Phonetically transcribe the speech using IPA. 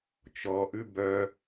t͡ʃ ɔ ʔ ʉ b œ

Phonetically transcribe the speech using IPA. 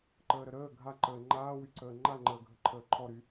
ǃ əː ɾ ə ɾ əː ɡʱ a ǃ əː ŋ͡ǃ aː w y ǀ əː ŋ͡ǃ a ŋ͡ǃ əː ɡʱ ə ǃʰ əː ǃʰ ɔ ɾ y

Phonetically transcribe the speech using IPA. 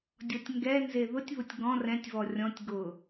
dʲ ɔ tʲ ŋ ɡ ɛ n z e ð ʊ tʲ β ʊ tʲ ɡ ɔ̃ r ɛ̃ tʲ v ɔ rʲ ɔ̃ tʲ ɡ ʊ

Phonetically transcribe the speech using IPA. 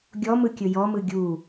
ɡʲ ɔ m ɯ kʲ ɵ j ɔ m ɯ ɡʲ u

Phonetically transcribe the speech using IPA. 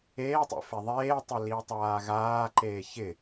eː tˤ ḛ f e ðˤ eː tˤ ɪ l i tˤ aː ɣ aː ǃ eː ç ɪ

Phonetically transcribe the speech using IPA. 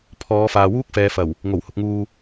pʰ ɔː˨˧ f aː˨ w uː˥ k̚ f ɛː˨˧ f ɐ˨˩ w | ŋ o˨˩ w h ʊ˨ k̚ ŋ uː˨

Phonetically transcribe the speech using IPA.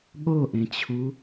ɠ o ʔ ẽ t͡ɕʰ u

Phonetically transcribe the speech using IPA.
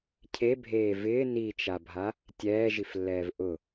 cʰ e bʱ eː v ɪː n i t͡ʃ a bʱ a | tʲ ɛː ʒ i f lː ɛː v ʔ ʊ

